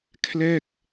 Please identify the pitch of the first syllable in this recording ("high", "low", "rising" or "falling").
falling